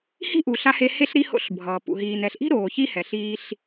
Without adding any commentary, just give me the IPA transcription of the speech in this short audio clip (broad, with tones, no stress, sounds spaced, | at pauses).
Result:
h i̤˥ ʔ u˩ ɬ a˧ h e˧ h e˧ ɬ ɾ i˧ h o̰˧ ɬ bʱ ʌː˩ p ṵ˩ ɦ iː˩ n ɛ˩ ɬ ʔ i̤˥ ɾ oː˩ ç i˧ h ɛ˩ ɬ iː˧ ɬ